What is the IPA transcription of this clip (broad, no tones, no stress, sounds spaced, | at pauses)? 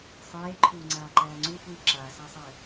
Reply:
sˤ eː ǃʰ uː ŋ͡ǀ aː ǃ æː ŋ͡ǀ u f uː ǁ a s æ sˤ ɛ